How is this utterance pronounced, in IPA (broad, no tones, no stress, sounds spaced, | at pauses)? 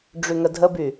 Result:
ɖ͡ʐ y ŋ ə dʱ ə b y